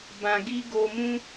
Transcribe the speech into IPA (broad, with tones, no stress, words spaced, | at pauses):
bã˧ɡi˦ ɡo˧mũ˦